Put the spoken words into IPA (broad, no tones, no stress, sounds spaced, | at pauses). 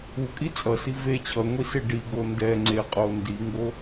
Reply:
u kʼ i t͡sʼ ʌ s i v e t͡ɕʰ ʌ ŋʷ i s e ɖ i ɡ o n d ɛ ŋ͡ǀ e qʼ o n d i ŋ ɡ o